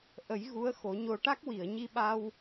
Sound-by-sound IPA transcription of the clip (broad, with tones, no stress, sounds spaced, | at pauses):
ʔ ə˨˩˦ j ɣ u˧˥ ə̯ x o˨˩˦ ɲ o˧ ʈ a˦˥ k̚ w i˨˩˨ ə̯ ɲ i˧ ɓ a˧ w